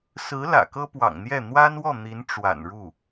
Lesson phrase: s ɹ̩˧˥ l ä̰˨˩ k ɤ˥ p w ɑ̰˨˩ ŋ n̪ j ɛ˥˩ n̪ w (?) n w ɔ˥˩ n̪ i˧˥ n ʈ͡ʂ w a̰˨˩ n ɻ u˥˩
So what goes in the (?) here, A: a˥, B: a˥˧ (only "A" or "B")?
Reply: A